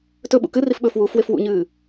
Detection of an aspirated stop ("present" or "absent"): absent